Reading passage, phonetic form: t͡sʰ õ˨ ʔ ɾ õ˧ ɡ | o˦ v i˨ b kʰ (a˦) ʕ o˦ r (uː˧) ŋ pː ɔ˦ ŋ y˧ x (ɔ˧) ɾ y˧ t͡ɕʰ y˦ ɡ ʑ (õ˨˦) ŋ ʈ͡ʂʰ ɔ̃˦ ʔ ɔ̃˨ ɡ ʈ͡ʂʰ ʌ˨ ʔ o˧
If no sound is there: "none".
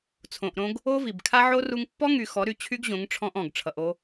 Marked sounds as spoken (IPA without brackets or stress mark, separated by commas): a˦, u˧, ɔ˨˦, õ˨˦